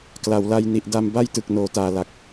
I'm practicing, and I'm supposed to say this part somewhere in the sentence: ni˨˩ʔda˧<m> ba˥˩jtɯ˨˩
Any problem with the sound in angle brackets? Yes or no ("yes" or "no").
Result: no